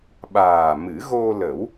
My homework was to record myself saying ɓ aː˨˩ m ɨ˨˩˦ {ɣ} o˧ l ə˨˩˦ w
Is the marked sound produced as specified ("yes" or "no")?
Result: yes